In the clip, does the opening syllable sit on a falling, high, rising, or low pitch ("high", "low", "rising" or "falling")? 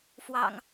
low